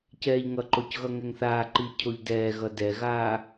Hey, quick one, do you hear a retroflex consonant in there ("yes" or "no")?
no